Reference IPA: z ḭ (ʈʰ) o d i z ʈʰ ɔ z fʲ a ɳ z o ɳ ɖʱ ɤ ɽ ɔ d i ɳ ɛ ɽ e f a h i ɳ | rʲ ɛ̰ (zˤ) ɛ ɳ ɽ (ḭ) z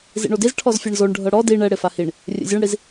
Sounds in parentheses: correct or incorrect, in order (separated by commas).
incorrect, incorrect, incorrect